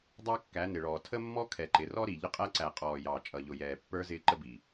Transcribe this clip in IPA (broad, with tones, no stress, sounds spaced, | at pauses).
dˤ ɑ˦ kː æ˨˦ n ɪ˨ ɭ ɔː˨ tʰ ə˦ mː ɔ˦ kʰ ɛ˨ ǃ ɪ˨ r ɔ˦ ɾ i˨ ʎ ə˦ qʼ æ˦ ǀ æ˨ qʼ ɔː˨ j ɑ˨ t͡ʃʼ ʌ˨ ʎ ʊ˨ j ɛː˨ pː ə˞˦ z ɪː˦ ǃ ə˦ b i˨